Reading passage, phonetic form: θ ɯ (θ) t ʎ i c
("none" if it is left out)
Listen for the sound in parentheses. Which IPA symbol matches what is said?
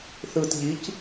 none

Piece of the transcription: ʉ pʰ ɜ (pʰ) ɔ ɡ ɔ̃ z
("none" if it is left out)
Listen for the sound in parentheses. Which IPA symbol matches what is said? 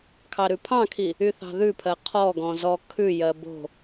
qʰ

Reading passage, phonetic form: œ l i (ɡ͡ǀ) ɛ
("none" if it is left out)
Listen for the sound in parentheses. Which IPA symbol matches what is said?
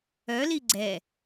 ɡ͡ǀ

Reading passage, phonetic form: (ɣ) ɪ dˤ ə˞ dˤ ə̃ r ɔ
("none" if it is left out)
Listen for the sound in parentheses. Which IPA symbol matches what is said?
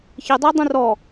ç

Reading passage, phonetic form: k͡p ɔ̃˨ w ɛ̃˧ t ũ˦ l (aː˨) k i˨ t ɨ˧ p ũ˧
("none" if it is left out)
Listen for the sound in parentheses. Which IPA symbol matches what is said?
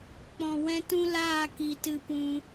aː˦˨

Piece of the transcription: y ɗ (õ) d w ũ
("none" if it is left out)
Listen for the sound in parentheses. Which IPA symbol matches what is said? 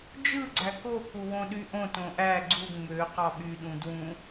ũ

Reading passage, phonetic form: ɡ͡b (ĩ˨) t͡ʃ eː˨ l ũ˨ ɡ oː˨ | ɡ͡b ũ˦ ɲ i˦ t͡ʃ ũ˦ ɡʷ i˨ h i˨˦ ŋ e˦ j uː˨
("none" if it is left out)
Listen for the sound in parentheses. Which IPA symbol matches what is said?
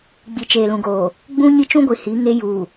i˨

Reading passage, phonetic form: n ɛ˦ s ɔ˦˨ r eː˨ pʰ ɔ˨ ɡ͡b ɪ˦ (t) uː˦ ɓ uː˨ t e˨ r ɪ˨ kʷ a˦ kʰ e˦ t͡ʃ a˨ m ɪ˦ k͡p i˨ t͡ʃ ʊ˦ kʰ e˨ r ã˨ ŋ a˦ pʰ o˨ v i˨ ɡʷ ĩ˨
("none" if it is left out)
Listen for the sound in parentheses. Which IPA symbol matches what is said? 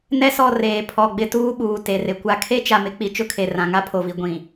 t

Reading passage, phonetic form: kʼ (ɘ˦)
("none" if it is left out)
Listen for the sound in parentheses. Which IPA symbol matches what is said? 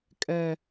ɛ˦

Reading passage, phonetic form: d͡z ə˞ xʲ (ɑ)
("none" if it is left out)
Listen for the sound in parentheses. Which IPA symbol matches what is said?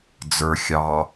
ɑ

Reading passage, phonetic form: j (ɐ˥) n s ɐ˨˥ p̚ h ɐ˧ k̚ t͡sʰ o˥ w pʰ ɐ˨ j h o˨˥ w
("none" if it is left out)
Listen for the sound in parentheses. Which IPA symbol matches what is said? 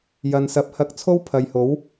ɐ˨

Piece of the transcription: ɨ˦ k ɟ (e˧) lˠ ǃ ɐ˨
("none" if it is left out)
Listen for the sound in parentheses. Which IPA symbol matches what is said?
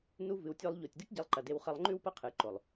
e˧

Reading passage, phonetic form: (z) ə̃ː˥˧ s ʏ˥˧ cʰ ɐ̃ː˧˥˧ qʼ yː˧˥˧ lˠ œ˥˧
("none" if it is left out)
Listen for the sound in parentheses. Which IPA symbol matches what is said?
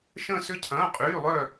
ʃ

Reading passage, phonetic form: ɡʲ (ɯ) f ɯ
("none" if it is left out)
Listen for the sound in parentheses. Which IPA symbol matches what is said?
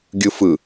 ɯ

